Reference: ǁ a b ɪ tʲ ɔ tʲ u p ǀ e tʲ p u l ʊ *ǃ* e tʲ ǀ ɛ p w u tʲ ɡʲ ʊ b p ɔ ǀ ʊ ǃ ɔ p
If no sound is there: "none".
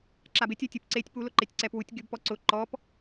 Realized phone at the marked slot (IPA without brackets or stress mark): ǃ